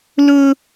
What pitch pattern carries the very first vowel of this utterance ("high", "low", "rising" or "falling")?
high